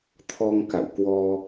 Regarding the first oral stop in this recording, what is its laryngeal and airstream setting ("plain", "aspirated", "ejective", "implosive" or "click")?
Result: aspirated